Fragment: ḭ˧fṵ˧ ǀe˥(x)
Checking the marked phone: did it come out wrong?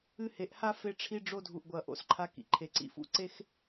no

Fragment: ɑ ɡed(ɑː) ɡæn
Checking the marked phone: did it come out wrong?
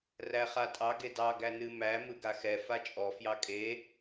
yes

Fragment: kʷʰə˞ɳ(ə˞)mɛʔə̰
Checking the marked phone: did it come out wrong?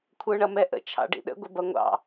yes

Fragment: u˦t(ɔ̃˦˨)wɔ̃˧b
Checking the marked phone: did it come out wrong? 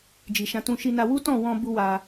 no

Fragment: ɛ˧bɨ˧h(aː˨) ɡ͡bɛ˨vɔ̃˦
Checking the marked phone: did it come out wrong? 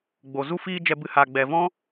no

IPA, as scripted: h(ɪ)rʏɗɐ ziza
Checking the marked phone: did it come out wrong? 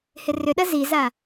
no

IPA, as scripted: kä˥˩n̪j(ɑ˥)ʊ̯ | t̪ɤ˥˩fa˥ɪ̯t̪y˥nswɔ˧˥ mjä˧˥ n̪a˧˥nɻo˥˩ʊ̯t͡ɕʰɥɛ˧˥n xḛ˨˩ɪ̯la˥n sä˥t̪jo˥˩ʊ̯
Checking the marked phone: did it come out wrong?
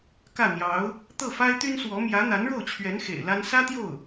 yes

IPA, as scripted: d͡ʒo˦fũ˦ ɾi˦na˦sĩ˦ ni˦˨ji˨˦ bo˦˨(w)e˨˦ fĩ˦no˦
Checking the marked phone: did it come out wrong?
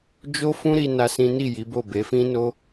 yes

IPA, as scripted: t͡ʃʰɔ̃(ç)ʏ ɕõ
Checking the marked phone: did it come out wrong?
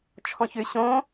no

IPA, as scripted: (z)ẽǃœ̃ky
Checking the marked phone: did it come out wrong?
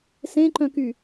yes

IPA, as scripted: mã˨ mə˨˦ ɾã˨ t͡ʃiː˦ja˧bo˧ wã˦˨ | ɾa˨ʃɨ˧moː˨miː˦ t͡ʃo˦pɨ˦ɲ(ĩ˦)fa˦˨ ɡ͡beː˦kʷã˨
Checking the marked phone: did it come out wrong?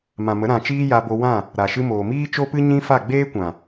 no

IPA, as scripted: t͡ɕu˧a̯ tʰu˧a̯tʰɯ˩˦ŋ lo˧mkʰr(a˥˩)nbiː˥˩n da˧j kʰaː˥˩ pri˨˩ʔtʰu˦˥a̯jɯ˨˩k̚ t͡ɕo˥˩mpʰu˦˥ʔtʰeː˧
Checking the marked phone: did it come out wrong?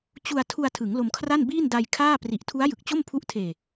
no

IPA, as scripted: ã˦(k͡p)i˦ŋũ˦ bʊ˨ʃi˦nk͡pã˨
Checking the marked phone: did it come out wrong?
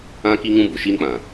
yes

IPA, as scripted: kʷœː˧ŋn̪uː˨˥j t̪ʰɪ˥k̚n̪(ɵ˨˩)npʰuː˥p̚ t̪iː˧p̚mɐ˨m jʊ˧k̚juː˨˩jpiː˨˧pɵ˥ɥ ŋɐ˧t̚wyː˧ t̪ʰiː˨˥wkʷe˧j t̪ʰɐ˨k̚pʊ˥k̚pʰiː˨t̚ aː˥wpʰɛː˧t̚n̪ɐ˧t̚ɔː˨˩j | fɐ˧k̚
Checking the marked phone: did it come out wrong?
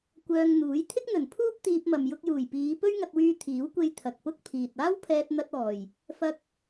no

